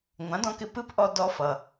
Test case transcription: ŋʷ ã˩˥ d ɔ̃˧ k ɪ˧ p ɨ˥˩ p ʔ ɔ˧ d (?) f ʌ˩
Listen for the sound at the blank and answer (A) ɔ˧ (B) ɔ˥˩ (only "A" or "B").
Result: A